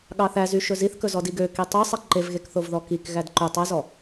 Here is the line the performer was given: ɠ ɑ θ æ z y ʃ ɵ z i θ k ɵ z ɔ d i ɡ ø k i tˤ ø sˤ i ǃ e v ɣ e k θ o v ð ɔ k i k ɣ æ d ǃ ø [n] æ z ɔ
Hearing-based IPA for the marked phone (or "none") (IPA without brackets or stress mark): tˤ